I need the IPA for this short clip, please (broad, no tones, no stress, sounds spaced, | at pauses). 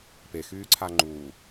p e x yː ǀʰ a ŋ͡ǃ uː